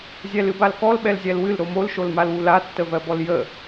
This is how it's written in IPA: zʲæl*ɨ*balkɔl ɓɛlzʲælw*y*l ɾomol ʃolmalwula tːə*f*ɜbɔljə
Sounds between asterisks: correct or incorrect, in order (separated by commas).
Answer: correct, incorrect, incorrect